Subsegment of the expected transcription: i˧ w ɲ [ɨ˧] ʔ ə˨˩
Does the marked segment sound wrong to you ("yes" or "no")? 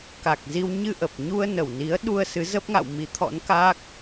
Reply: no